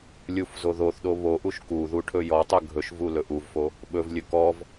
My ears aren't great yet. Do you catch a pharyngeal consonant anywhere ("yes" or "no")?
no